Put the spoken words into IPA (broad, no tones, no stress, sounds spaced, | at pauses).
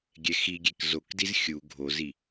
ɡʲ ɛ x i ɡʲ e k z o k d i z xʲ u ɡʱ o z i